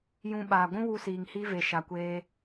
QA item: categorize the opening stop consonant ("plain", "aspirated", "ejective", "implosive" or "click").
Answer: implosive